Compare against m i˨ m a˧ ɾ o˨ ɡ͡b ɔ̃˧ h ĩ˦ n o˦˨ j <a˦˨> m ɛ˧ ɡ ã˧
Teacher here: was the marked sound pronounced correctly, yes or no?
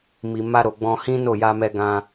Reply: no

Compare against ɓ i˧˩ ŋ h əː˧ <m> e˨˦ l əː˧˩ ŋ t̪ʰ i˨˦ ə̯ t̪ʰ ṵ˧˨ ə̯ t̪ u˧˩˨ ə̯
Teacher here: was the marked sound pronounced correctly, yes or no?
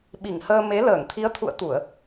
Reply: yes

